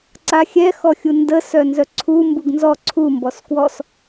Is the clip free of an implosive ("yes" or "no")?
yes